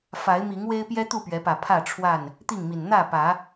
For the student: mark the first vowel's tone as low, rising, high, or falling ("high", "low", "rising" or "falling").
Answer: rising